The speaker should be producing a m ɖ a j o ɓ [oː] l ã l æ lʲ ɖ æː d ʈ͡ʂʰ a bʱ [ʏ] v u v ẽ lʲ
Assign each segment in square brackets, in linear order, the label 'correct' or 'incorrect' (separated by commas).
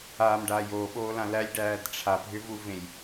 correct, correct